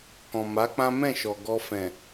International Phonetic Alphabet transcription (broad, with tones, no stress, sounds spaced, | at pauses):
k ɔ̃˨ m a˨˦ k͡p ã˦ m ɛ̃˦˨ ʃ ɔ˨ ɡ ɔ˧ f ɛ̃˨